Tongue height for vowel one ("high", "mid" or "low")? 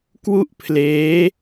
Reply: high